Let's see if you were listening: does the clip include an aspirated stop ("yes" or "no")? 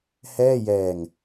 no